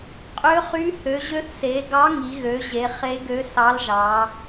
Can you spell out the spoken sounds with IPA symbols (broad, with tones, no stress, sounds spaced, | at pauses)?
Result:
qʼ ø˧˥ χ y˧˥ h ø˩˧ ʑ ø˧˥ θ s e˩˧ ɡ ɑ˧˥ ŋ i˩˧ ɣ ø˩˧ ʑ e˩˧ χ e˧˥ ɡ ø˧˥ s ɑ˧˥ l ʒ ɑ˩˧